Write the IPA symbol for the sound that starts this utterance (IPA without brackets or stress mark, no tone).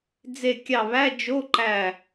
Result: d͡z